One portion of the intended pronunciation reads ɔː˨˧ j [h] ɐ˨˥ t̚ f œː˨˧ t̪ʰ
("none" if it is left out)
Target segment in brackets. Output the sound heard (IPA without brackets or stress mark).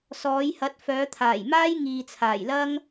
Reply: h